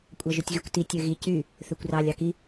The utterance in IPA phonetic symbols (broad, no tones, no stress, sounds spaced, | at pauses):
kʷʼ ɑ ʒ ø tʲ ɣ y kʷ t i tʲ ø ɣ i c y | θ ø kʷ r ɑ lʲ ɑ k i